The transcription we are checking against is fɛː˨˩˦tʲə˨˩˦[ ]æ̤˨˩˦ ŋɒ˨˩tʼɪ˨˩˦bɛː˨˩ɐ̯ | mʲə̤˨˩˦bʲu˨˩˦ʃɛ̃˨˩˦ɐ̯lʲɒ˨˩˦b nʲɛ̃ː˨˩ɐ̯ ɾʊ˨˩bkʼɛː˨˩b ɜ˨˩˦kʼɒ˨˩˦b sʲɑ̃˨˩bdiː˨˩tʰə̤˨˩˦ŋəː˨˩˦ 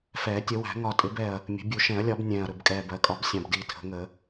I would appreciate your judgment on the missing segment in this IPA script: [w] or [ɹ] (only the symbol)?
w